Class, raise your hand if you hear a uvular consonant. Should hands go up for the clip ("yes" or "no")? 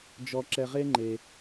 yes